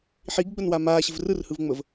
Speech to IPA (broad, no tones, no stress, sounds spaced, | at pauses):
ħ i ɡ ɡ͡b ə n w a m aː ɕ ɘ v r ɯ r h ɯ v ŋ͡m ə v